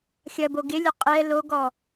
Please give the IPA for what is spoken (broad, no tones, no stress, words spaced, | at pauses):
xʲɐbo ɡɪlʲɐ qʼɛ loɡɔ